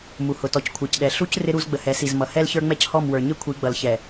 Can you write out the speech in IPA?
mu˨hʊ˨tɔ˨c kʷʰɛ˨cɗɛ˨ ɬu˦c rɪ˦ɾu˦z ɡ͡bə˨hɛ˨˦si˨z mʌ˨ hɛ˦lçə˞˦ ŋ͡mɛ˦c hɔ˦˨mwə˞˨ ɲɪ˦kʷʰi˨˦ɡ͡bʌ˨lçɛ˨

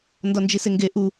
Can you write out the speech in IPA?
ndɒnd͡ʒiseŋɡe ʔu

